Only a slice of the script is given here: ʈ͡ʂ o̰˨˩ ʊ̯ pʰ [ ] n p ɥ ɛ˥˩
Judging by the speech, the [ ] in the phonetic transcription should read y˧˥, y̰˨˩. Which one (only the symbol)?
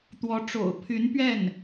y˧˥